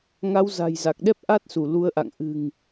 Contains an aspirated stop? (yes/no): no